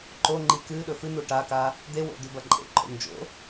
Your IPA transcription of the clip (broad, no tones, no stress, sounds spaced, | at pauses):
ǃ o ŋ͡ǃ i k ɨ ɗ ɵ f ɨ n̪ u ʈ a k a | d̪ e w o̰ d̪ ʉ b ɐ ǃʼ ḛ ǃʼ o̰ n d͡ʒ o̰